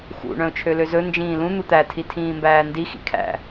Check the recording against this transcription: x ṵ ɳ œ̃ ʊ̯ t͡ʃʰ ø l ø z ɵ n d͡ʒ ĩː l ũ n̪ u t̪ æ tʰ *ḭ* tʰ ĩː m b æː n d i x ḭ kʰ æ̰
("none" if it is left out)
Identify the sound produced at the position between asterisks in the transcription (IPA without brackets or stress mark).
i